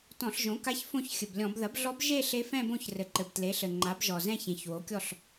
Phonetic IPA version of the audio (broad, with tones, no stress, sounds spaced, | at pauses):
t ɔ̃˧˩˧ ɬ ʒ õ˩˥ k a˧˥ ç f õ˥˩ ç xʲ ɘ˩ b lʲ ɔ̃˧˩˧ b ð ɐ˩˥ b ɮ ɔ˧˥ b ʒ e˥˧ ɬ e˧˥ f ɛ̃˥˧ b õ˥˩ ç r ɘ˩ ǃ ɘ˩ b t l e˩˥ ɬ ɘ˩ ŋ͡ǃ a˩˥ b ʒ ɔ˩ z ɛ̃˥˧ ç ẽ˩ ç w o˩˥ kʲ ɔ˥˩ ɬ